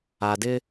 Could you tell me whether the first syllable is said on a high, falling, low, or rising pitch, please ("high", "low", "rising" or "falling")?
low